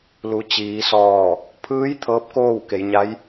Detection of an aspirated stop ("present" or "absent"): present